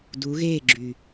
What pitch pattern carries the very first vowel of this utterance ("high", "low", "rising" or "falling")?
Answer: rising